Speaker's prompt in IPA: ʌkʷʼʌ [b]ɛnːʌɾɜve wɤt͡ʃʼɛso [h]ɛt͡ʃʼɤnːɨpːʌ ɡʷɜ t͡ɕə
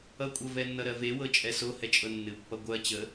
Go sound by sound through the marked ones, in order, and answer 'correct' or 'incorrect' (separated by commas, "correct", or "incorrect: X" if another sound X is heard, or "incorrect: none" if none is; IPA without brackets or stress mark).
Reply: incorrect: v, correct